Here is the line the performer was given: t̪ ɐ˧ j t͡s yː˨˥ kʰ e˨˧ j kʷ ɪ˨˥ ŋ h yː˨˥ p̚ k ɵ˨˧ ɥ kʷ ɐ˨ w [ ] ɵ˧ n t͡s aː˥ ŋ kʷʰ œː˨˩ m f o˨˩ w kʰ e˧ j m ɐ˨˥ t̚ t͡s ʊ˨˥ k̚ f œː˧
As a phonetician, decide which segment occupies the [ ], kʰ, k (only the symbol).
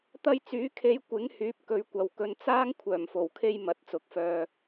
k